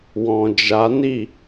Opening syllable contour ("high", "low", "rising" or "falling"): low